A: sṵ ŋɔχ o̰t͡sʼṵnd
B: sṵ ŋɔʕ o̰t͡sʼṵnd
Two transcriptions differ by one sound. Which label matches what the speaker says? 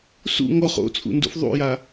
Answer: A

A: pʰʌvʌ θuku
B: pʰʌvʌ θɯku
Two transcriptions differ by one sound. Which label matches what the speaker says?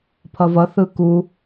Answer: B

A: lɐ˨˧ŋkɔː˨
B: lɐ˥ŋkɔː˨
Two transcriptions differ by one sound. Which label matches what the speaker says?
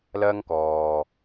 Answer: B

